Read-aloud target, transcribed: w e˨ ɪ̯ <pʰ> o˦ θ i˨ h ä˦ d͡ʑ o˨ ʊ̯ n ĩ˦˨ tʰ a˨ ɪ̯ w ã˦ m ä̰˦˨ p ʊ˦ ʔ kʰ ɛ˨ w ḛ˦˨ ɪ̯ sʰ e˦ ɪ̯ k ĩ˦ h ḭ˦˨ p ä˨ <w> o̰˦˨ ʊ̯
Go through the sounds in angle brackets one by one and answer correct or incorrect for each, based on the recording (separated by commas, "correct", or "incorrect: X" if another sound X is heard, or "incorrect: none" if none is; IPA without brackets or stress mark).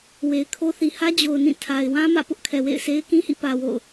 incorrect: kʰ, correct